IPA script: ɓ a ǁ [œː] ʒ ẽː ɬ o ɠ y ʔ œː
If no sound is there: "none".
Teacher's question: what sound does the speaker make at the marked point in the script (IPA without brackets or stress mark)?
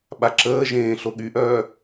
əː